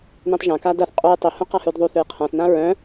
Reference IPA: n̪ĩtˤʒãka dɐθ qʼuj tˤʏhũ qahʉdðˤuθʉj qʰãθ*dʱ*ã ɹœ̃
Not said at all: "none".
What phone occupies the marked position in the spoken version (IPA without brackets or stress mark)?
n̪